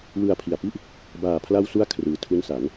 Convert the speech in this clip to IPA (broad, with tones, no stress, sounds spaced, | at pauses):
w ɯ˨˩ a̯ pʰ i˨˩ a̯ p i˥˩ ʔ | b aː˨˩ pʰ l a˧ w s u˧ a̯ kʰ r ɯː˩˦ tʰ u˦˥ n s a˩˦ n